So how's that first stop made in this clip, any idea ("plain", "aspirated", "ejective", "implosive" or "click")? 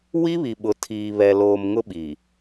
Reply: implosive